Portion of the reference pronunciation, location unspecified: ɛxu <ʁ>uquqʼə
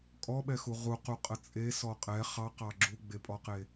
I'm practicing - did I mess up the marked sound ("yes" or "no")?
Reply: no